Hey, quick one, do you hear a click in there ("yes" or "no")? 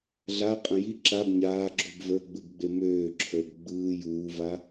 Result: yes